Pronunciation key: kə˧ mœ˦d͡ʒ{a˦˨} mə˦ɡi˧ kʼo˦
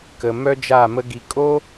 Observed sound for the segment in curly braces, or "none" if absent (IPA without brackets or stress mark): a˦˨